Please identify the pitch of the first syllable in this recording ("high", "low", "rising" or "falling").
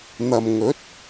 low